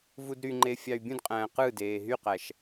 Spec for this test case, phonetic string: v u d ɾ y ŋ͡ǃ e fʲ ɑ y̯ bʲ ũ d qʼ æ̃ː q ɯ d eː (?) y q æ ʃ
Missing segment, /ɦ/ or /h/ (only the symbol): ɦ